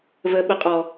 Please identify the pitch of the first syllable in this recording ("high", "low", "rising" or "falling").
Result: low